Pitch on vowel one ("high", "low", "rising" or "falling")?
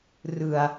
low